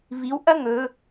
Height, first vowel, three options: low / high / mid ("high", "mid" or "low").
high